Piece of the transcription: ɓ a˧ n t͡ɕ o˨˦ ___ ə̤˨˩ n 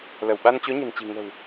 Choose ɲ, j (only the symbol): ɲ